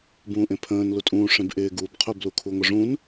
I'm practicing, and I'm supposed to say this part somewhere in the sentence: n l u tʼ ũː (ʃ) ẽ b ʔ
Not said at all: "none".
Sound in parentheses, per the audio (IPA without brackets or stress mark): ʂ